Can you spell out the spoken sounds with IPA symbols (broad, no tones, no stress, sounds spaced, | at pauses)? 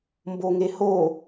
m b o ŋ e h o